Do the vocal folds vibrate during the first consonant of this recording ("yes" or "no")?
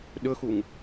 yes